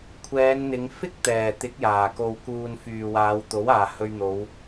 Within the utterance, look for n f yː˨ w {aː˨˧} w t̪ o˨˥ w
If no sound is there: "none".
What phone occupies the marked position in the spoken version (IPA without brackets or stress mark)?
aː˨˧